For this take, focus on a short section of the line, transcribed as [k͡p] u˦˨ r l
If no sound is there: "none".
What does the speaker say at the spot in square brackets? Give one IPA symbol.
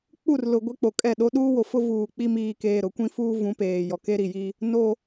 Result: k͡p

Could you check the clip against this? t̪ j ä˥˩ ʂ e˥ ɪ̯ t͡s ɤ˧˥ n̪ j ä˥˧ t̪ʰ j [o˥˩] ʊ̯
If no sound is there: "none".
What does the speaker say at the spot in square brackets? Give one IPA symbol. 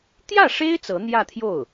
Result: o˥˩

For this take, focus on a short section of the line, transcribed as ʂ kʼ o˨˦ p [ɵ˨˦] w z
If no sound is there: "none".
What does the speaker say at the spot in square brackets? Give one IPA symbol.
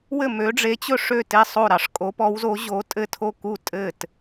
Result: ɔ˨˦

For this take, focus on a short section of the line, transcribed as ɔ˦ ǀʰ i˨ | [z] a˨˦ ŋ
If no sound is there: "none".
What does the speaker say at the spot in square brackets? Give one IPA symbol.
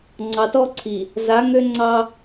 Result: z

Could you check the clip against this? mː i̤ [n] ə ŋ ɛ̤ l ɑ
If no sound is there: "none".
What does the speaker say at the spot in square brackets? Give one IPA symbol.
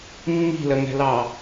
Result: l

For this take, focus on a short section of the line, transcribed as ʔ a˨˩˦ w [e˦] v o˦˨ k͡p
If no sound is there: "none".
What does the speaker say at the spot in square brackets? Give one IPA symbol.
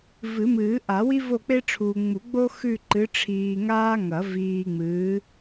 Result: i˦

